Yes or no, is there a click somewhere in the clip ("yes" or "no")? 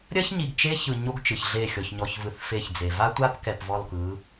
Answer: no